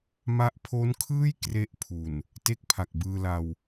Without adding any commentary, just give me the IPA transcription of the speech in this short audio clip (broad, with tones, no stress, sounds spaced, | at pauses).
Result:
m a˦˥ ʔ pʰ o˦˥ n kʰ ɯː˥˩ j k r e˥˩ ʔ pʰ u˨˩ n | t e˥˩ k̚ pʰ a˨˩ k̚ b ɯː˧ l a˧ w